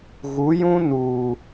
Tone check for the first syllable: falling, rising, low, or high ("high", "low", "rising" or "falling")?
rising